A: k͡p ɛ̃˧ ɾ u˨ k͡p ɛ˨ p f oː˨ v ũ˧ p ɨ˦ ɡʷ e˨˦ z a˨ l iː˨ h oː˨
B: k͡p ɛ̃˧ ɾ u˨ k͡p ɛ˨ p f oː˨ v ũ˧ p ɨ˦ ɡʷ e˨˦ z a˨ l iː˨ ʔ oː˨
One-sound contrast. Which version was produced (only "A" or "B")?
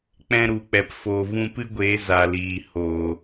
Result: A